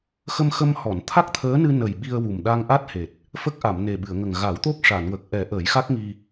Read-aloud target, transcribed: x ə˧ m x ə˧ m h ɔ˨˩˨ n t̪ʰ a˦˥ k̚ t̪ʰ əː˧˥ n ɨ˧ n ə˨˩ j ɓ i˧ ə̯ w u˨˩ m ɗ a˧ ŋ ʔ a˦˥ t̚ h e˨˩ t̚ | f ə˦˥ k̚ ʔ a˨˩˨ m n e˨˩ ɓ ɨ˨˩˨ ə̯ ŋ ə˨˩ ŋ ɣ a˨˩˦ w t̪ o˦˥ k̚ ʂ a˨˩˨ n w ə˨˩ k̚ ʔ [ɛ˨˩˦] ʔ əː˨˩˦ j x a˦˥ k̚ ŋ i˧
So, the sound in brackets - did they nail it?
yes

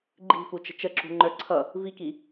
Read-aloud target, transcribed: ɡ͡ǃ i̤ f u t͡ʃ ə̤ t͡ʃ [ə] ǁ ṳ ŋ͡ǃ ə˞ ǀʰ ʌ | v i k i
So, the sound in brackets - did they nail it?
yes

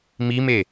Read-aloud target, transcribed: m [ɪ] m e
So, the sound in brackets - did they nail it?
no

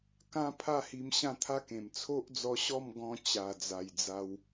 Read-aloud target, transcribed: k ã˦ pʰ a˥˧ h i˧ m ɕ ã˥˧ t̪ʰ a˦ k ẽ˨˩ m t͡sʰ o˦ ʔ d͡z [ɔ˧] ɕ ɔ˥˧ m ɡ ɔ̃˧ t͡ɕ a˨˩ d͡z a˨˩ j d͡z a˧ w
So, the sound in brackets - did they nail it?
yes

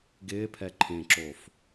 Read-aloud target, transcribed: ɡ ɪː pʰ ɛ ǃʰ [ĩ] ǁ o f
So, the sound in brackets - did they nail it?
no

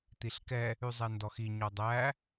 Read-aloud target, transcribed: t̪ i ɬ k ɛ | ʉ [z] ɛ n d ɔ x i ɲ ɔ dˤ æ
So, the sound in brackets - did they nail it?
no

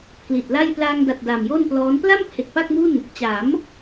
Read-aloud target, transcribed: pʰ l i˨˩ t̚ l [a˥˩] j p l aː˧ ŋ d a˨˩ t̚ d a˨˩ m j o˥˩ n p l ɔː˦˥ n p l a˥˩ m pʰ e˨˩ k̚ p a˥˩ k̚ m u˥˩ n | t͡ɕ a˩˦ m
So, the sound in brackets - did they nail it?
yes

